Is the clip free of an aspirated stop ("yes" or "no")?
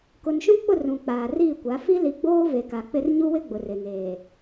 yes